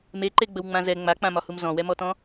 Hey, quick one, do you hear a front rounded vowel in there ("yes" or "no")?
no